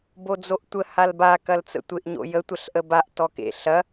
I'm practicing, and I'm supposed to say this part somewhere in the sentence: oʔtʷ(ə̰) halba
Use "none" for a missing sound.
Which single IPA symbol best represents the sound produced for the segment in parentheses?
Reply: ə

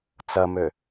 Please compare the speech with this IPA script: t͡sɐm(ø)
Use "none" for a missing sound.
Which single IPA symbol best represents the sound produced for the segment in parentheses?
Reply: ø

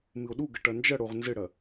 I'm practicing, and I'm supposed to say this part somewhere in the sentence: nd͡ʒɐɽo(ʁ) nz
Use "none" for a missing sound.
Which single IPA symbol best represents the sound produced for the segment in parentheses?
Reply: ʁ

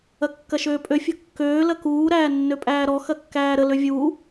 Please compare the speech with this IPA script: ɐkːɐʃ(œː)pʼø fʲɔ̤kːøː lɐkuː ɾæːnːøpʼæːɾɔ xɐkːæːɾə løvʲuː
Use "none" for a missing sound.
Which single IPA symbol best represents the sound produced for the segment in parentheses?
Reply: øː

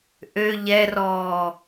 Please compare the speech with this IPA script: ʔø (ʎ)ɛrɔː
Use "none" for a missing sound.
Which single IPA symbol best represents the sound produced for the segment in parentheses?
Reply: ʎ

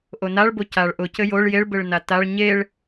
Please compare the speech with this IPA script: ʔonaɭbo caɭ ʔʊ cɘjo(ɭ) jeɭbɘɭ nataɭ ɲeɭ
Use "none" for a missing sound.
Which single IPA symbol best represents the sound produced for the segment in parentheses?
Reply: ɭ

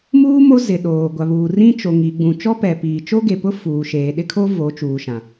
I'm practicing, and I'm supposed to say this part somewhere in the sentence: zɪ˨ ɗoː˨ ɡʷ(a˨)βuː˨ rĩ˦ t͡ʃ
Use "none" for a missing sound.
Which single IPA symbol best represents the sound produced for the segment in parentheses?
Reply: a˨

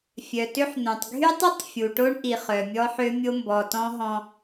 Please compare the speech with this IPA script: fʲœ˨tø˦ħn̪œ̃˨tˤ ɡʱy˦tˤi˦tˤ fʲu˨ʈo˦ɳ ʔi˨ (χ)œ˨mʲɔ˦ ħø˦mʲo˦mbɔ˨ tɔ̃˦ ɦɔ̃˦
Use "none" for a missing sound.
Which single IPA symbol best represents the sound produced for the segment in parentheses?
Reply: χ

